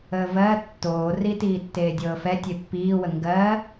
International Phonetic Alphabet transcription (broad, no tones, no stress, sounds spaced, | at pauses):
əː v ɜ tː oː r i t iː tː eː dʲ ɤː f ɛ tʲ e pː iː w ə ŋ ɡ ɜ